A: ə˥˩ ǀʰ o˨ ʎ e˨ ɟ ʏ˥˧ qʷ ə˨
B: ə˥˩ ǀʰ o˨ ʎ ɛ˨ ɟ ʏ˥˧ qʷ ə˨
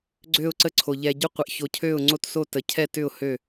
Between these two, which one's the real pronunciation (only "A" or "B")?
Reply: B